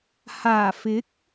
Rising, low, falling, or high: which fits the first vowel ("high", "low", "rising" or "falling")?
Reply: low